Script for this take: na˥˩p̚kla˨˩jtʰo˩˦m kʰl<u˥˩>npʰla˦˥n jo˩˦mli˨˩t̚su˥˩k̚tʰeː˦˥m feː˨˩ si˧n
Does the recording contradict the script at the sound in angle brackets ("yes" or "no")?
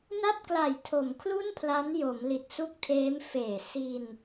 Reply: no